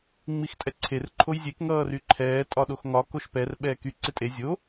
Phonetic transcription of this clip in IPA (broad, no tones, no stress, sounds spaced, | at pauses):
ŋ͡m i x tʼ ɛ ǀʰ e r ǃʰ o j zʲ e k ŋ ʌː r y ǃʰ ɛː tʼ ɒ ɗ o x ŋ ɒ k o ʃ p ɛ r ɓ ɛː k y ǀ e tʼ e zʲ o